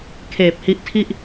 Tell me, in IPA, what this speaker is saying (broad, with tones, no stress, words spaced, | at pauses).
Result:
kʰeː˨˩p̚hi˦˥ʔ tʰi˥˩ʔ